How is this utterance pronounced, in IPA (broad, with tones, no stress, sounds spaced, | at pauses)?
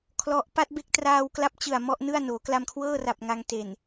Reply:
kʰ l ɔ˦˥ ʔ p a˦˥ t̚ b e˦˥ k̚ t r aː˧ w k l a˦˥ p̚ t͡ɕ ɯ˨˩ a̯ m ɔ˥˩ ʔ n ɯ˥˩ a̯ n oː˩˦ k l a˧ m kʰ w ɤː˥˩ r a˨˩ p̚ ŋ a˧ ŋ t e˨˩ n